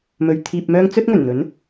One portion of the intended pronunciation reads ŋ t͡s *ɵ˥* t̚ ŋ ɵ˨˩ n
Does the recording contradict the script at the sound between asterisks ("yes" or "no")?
no